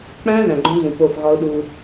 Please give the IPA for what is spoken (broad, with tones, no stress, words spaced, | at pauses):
k͡pæ̃˦ ðæ̃˨ɡ͡ǃõ˦zũ˨po˦˨f ɣɒ˦ʊ̯ɗu˦